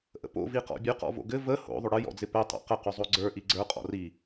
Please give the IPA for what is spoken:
ʔə̰po̰ viqɔ̰bʲʉ qɔ̰vo̰ɡɘ və ho̰ ðˤoɽɘ jɔ̰d͡zɪpɘ tˤo̰qə qʉzˤoɡ͡ǀə˞ ʔiɡ͡ǀə˞ qʼɔ̰ri

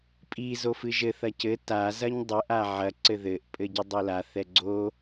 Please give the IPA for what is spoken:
pʼi zofɨʒɘ θɐcɘ ta zɐɲdˤɘ ʔaʕɐ ǀɘðɘʔ pʼɘɟɨdˤola θɛɡ͡ǀo

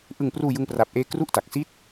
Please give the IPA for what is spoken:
ʔɯ˧ŋpruː˧ jɯ˥˩ŋpra˦˥p̚ʔeː˥˩ kru˥˩ʔta˨˩k̚si˥˩t̚

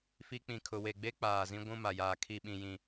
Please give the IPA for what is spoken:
fi˦ k͡pĩ˨kʰʊ˨we˨ɡ͡be˦ k͡paː˨zĩ˦ ɡʷũ˦ma˨jaː˨ kʰi˨ɓĩ˨jĩ˨

